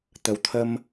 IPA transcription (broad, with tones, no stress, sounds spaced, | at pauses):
t̪ ə˨˦ w t̪ʰ ə˧ m